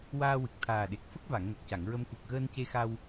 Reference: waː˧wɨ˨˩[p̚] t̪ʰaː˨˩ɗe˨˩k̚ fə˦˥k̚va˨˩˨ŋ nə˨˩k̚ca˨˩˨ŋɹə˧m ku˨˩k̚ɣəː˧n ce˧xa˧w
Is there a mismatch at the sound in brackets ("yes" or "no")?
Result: yes